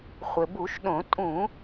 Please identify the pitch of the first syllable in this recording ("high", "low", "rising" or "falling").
low